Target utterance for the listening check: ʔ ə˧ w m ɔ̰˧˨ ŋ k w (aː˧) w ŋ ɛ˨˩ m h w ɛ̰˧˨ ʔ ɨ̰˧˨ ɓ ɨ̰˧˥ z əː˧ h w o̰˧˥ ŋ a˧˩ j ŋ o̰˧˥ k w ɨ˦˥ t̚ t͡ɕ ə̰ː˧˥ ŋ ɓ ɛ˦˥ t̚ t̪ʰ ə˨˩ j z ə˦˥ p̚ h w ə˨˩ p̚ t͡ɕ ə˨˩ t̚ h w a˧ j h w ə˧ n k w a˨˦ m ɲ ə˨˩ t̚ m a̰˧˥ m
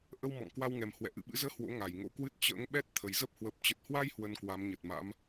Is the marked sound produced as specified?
no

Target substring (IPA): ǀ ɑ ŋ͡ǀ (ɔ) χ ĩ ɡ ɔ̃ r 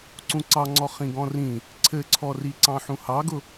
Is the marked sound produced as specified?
yes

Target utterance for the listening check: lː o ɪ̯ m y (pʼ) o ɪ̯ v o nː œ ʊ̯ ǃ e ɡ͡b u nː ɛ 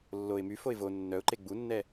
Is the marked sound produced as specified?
no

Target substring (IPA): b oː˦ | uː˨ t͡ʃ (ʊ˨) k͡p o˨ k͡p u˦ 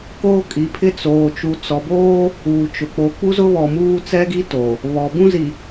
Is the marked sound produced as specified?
yes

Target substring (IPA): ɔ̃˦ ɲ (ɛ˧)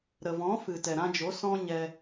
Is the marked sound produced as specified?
yes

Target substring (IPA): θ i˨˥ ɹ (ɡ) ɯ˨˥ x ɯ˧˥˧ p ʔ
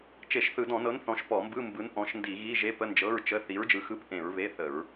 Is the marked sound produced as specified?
no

